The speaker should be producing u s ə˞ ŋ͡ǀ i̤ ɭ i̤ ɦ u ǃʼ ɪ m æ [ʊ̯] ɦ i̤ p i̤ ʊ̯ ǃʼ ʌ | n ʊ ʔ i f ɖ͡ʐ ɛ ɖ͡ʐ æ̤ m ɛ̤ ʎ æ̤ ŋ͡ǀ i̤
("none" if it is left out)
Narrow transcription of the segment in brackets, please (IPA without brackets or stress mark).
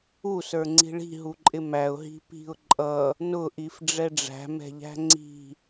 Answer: ʊ̯